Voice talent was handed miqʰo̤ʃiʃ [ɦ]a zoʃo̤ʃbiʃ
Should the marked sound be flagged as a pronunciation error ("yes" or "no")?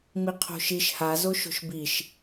yes